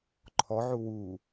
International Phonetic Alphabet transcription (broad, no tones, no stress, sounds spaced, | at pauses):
ǃʰ ɔ ʕ u w u